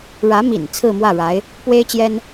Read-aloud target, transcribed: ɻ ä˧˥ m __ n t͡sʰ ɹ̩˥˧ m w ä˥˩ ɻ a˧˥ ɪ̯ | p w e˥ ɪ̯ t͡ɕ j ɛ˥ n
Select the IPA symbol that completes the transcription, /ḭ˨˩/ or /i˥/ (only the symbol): ḭ˨˩